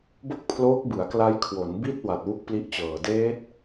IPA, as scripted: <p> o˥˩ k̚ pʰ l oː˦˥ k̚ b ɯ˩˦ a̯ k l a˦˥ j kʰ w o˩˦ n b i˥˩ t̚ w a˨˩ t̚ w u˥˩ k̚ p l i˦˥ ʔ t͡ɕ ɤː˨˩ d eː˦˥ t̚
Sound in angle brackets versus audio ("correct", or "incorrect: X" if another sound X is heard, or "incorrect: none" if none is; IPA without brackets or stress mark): incorrect: b